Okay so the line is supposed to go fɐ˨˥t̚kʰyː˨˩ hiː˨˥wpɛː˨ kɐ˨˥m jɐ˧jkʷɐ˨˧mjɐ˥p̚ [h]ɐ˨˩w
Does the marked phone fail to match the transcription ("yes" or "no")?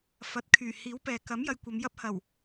no